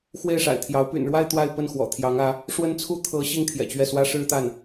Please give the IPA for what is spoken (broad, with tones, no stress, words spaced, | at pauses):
xwe˥˩ɪ̯ʂa̰˨˩ɪ̯t̪ʰjɑ˧˥ʊ̯ py̰˨˩nɻwa˥˧ɪ̯ t̪wa˥˧ɪ̯pə˥˩n xwɔ̰˨˩t̪ʰjɑ˧˥ŋä˧˥ | ʂwə˥nt͡sʰu˥ t̪ʰɤ˧˥ ɕi˥ŋt̪ʰjɛ̰˨˩t͡ɕɥɛ˥˩ swä˥ʂɻ̩˥t̪a˥˩n